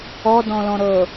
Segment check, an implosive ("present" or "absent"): absent